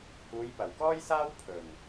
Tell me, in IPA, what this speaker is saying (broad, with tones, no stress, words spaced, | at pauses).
huː˨˧jpɐ˨˩wkɔː˥jsaː˥w pʰɵ˨˩n